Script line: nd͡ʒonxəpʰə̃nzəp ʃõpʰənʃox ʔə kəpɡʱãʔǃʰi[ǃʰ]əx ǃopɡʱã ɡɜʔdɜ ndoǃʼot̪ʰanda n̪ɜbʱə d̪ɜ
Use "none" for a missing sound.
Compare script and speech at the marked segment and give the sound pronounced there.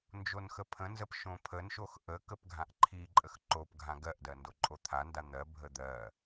ǃʼ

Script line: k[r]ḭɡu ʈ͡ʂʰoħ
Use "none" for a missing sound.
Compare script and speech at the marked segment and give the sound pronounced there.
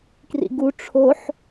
r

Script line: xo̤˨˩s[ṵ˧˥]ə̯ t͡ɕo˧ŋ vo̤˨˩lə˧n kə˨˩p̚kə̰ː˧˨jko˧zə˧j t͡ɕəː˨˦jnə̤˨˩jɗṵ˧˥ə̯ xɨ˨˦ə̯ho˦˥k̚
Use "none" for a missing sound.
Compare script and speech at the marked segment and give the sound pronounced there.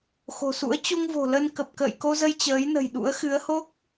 ṵ˧˥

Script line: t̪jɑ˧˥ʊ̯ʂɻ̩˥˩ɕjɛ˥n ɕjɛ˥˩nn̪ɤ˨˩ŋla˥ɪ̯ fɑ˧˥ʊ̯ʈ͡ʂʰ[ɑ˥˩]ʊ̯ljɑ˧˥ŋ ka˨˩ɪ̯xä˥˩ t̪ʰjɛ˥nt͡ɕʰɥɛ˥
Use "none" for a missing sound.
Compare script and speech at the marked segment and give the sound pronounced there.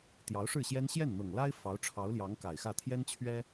ɑ˧˥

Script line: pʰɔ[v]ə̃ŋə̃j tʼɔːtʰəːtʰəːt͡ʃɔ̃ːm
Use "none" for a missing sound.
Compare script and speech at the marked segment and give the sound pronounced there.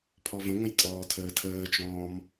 v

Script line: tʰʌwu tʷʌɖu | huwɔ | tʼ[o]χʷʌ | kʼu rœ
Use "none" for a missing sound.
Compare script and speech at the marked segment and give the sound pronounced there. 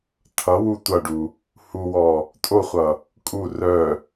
o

